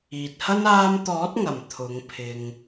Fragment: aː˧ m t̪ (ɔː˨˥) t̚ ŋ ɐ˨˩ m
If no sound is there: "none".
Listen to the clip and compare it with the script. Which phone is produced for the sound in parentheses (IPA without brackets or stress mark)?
ɔː˨˥